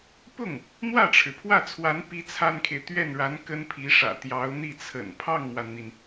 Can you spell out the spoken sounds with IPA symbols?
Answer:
p ʊ˥˩ ŋ | n̪ w ä˥˩ ʈ͡ʂʰ ɻ̩˩ pʰ w ä˥˩ t͡sʰ w a˧˥ n p i˥ t͡sʰ a˥ n kʰ e˨ ɪ̯ t̪ ɥ ɛ˥˩ n ɻ a˧˥ n k ə˥ n pʰ i˧˥ ʂ ä̰˨˩ t̪ j ɑ˧˥ ʊ̯ n̪ i˥˩ t͡sʰ ə̰˨˩ n pʰ ɑ˥˩ ŋ m w a˩ n n̪ i˩ n

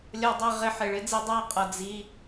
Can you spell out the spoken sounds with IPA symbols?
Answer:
lʲ ʌ˦ dˤ ɛ˦ ʁ ɪ˧ ħ ɪ˨ ɭ ɪ˦ d͡z i˧ dˤ æ˧ qʼ ʌ˨ d͡z i˧

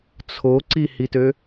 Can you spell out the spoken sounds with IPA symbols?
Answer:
t͡sʰ o ǀ i h i t ø

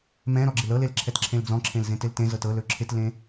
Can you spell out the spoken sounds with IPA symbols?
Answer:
m ɛ̃ ɾ ɔ ɡ͡ǁ ɪ l ɤ l e l ǁʰ ɛ t ǁʰ ẽ l d͡z ɔ̃ ǁʰ ẽ l z ẽ t ɪ l t ẽ z ɤ t ɤ l ɵ ǁʰ ɪ t l ẽ

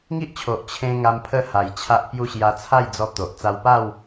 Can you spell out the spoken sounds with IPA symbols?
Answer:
ŋ i˦ ʔ t͡ɕʰ o˨ ʔ t͡ɕʰ ẽ˧ ŋ a˧ m pʰ ə˥˧ h a˨˩ j t͡ɕʰ a˦ ʔ p j u˥˧ ɕ j a˧ t͡sʰ a˥˧ j d͡z ɔ˧ t̪ o˨ ʔ t͡s a˧ w p a˥˧ w

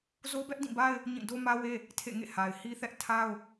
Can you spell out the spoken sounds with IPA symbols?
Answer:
z o˦ b ɛ˦ ʔ d ĩ˦˨ b a˦ ɪ̯ | ɲ ĩ˦˨ d o˦ m ä˦ w e˦ | tʰ ḛ˦˨ ŋ ḛ˦˨ h a˨ ɪ̯ h i˦ θ ɛ˦ ʔ tʰ a˦ ʊ̯

